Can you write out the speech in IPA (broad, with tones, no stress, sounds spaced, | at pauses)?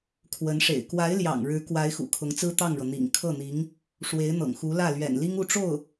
kʰ w ə˧˥ n ʂ ḛ˨˩ ɪ̯ k w a˧˥ ɪ̯ l j ɑ̰˨˩ ŋ ɻ ɻ̩˧˥ k w a˧˥ ɪ̯ x ṵ˨˩ kʰ ʊ˧˥ ŋ t͡s ɹ̩˥ t̪ ɑ˥˩ ŋ ɻ ɤ˩ n̪ ḭ˨˩ ŋ kʰ ɤ˥˩ n̪ i˧˥ ŋ | ʂ w e˧˥ ɪ̯ n̪ ɤ̰˨˩ ŋ x u˧˥ l ä˥˩ l ɥ ɛ̰˨˩ n l i˥ ŋ u˥˧ ʈ͡ʂ o˥˩ ʊ̯